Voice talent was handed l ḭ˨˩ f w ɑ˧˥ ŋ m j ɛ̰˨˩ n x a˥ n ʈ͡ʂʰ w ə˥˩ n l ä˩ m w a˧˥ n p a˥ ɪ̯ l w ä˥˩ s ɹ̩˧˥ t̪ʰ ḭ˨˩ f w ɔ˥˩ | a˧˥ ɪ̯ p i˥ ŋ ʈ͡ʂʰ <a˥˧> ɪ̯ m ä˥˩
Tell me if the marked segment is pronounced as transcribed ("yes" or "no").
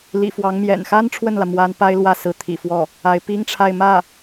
yes